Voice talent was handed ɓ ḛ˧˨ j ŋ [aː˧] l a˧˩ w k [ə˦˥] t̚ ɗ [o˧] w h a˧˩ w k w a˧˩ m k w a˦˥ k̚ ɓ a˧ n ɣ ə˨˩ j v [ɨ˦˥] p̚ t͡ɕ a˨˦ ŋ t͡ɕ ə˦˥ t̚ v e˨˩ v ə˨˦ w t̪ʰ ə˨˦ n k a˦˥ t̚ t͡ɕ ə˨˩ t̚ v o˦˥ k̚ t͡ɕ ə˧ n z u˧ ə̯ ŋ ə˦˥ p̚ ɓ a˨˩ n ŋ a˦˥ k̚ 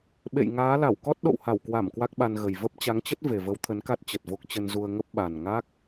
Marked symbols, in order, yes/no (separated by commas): no, no, no, no